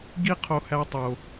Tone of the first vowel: high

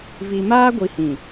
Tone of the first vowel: low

